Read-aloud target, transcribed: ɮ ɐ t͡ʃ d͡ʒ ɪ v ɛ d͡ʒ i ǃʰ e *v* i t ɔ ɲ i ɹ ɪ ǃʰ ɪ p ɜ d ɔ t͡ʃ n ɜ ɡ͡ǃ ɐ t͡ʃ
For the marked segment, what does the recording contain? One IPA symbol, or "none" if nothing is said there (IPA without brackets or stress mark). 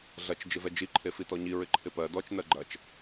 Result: f